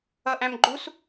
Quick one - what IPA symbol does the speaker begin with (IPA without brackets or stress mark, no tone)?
ʌ